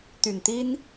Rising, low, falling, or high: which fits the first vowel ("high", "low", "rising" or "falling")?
low